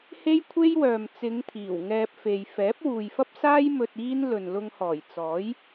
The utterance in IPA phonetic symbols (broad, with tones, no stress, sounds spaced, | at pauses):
h e˥ j kʷʰ e˥ j w œː˨ m t͡s ɪ˨˧ ŋ t̪ʰ iː˨˩ w ŋ ɛː˧ p̚ f e˨ j f ɛː˨˥ p̚ w uː˨ j f ɐ˥ p̚ s aː˥ j m ɵ˧ t̚ iː˥ n l ɵ˨ n l ʊ˧ ŋ h ɔː˨˩ j t͡s ɔː˨˥ j